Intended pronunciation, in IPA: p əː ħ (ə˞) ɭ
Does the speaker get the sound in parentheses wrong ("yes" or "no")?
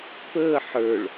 no